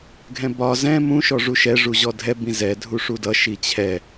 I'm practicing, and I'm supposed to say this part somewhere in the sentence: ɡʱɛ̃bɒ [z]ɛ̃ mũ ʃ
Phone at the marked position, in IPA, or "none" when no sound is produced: z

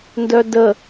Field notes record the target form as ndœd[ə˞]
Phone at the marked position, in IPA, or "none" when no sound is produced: ə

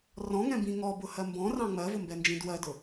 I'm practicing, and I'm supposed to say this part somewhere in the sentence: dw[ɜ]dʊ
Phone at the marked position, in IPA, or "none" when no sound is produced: ɜ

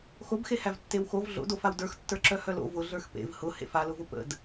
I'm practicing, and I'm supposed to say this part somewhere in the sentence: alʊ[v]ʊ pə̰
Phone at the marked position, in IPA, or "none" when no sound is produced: v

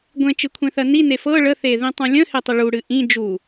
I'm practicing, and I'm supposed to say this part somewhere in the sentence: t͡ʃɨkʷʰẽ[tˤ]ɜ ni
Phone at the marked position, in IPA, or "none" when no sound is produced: θ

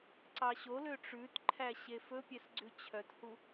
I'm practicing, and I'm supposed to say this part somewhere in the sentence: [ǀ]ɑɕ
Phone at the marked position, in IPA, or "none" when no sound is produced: ǀ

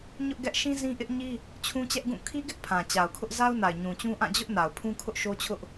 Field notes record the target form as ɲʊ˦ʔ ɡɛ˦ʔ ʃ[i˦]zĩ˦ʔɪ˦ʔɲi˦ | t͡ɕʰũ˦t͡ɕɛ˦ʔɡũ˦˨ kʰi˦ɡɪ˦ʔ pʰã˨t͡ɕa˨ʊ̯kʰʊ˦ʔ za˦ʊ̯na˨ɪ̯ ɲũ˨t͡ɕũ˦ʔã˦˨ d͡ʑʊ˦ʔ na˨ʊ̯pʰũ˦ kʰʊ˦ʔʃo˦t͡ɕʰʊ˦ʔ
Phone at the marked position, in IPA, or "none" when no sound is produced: ĩ˦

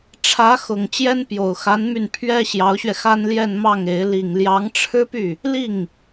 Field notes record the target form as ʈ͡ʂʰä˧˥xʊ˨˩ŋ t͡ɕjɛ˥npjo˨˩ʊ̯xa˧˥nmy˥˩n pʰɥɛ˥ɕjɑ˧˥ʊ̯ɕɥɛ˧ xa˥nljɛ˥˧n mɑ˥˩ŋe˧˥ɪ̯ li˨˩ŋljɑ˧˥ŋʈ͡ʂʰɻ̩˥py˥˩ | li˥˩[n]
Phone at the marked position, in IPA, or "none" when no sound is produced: ŋ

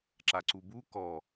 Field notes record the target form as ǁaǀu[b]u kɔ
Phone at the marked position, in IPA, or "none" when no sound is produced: b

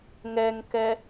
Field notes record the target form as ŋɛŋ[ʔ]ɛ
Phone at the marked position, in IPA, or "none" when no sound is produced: k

